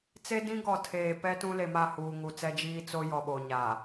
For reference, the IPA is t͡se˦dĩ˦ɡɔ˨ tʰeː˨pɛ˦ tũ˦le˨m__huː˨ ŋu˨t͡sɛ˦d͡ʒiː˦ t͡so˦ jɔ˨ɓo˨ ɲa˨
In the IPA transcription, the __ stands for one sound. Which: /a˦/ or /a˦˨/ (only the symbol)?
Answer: a˦˨